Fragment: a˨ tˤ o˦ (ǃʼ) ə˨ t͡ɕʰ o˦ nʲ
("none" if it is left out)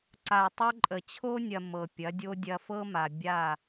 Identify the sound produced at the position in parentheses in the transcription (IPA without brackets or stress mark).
ǃʼ